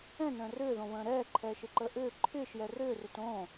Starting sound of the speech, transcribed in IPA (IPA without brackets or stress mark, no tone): ɛ̃